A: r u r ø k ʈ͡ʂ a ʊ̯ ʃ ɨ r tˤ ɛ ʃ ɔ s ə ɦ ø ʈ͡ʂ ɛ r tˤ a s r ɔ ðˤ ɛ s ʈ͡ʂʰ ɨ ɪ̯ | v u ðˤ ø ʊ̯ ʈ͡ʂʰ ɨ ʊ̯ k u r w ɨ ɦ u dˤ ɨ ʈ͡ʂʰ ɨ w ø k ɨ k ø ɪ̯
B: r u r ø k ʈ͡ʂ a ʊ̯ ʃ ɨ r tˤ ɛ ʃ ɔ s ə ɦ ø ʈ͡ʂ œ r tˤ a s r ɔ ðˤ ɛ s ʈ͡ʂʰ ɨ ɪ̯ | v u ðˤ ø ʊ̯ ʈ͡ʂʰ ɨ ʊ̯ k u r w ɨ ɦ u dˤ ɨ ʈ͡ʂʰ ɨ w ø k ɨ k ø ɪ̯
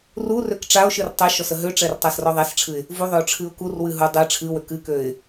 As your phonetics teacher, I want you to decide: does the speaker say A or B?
A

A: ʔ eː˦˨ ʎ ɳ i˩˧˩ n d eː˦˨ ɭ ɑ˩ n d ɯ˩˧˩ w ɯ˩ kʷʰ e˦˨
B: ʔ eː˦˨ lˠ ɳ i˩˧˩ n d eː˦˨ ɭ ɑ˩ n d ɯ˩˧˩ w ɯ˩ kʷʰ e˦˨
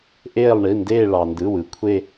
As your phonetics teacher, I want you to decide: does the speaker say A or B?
B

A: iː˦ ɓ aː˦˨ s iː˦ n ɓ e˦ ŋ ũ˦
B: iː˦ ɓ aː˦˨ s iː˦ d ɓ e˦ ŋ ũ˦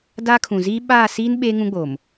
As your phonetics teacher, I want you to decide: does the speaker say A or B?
A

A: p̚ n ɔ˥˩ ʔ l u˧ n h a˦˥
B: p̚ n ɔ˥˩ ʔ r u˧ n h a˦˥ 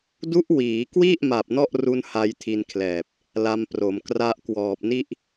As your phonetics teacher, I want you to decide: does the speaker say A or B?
B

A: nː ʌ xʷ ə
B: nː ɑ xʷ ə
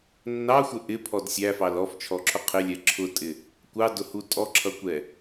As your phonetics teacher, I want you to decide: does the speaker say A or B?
B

